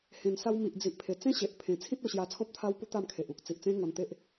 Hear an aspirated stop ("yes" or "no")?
yes